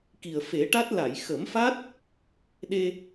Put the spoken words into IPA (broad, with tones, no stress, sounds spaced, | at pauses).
k i˨˩ ə̯ f e˨˩˦ ʈ a˦˥ t̚ l a˨˩˨ j x ə˨˩˦ m f a˦˥ t̚ | ɗ e˧